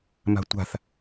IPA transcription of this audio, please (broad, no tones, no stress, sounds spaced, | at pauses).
m a̤ tʷ a̤ θ